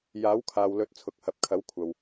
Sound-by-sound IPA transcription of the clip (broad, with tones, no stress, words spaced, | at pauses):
jaː˨˥wkʰaː˨wlɵ˨˥t̚ t͡sʰʊ˨˥k̚hɐ˨˥p̚kʰɐ˨˥w kʷʰɐ˨w